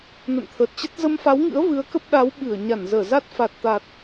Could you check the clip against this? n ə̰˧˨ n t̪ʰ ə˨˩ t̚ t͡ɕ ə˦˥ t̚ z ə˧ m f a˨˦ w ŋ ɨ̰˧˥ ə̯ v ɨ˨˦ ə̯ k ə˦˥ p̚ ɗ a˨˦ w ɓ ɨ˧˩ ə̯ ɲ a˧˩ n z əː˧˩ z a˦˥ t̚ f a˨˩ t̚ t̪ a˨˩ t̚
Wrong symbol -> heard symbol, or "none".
none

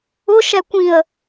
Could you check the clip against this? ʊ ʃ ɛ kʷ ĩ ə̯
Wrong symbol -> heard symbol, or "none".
none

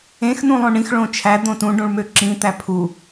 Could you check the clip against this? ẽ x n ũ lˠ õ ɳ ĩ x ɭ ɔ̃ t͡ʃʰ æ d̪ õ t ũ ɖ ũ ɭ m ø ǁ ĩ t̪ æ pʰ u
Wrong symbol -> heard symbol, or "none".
ɔ̃ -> õ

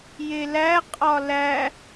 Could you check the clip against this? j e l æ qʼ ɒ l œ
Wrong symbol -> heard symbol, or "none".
œ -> æ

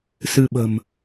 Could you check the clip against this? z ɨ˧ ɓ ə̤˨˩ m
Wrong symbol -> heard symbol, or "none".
z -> s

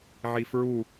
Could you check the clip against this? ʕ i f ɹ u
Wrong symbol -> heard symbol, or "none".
none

